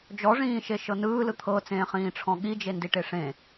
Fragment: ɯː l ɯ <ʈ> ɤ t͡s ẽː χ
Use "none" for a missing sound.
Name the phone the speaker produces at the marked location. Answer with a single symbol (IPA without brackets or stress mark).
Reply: t̪ʰ